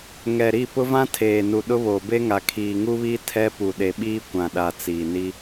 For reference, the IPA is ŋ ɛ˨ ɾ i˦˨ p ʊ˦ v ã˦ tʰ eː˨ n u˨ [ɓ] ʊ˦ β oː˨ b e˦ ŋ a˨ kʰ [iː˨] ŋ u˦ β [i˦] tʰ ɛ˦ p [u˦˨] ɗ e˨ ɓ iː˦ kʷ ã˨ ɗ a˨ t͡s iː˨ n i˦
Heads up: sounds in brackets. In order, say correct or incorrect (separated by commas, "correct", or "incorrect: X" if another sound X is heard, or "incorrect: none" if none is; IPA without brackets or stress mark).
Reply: incorrect: ɗ, correct, correct, incorrect: u˨